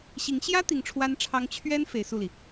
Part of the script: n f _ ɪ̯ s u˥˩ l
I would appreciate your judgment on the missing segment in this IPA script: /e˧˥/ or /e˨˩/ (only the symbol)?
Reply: e˧˥